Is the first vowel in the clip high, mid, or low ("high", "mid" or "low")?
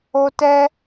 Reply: mid